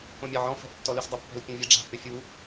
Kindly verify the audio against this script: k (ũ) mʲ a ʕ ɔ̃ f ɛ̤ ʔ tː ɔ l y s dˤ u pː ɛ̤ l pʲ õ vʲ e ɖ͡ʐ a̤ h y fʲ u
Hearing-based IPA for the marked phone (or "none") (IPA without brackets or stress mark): õ